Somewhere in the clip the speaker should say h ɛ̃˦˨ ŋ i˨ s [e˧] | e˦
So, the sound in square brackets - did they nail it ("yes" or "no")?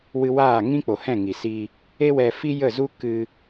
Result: no